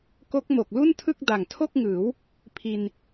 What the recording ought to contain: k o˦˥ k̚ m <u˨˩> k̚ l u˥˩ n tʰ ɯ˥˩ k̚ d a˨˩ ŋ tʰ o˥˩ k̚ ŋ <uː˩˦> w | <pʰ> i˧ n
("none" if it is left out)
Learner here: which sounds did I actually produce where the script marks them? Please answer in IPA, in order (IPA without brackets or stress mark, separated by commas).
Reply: o˨˩, ɯː˩˦, pʰ